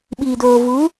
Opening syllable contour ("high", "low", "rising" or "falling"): low